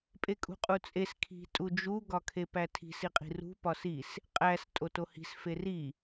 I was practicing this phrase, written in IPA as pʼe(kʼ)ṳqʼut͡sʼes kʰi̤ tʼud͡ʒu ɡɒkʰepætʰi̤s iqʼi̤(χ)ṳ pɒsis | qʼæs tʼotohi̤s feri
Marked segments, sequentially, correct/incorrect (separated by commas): correct, incorrect